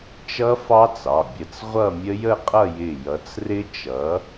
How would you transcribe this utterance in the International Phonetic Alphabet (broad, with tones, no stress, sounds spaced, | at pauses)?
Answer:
t͡ʃ ʌ˦˥ f ɑ˦˥ t͡s ɑ˩˧˩ bʲ ə˧˩ t͡s ʁʷ ʌ˥˧ mʲ ə˦˥ j ə˥˧ qʼ ʌ˥˧ j ɪ˧˩ j ʌ˨˥ t͡s r ɪ˦˥ t͡ʃ ʌ˨˥